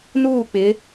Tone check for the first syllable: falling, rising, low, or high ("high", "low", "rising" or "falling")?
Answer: falling